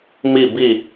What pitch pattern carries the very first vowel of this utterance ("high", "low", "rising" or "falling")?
falling